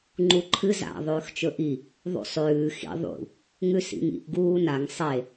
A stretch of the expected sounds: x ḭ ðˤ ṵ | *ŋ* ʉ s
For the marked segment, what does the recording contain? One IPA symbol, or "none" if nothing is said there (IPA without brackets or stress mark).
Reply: ŋ